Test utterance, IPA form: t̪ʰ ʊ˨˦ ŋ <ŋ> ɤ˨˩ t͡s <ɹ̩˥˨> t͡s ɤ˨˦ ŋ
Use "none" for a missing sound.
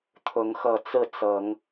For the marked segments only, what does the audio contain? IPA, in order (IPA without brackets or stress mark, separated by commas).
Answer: x, ɹ̩˥˨